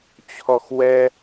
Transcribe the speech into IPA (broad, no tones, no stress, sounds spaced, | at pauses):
t͡ɕʰ ɔ x w ɛ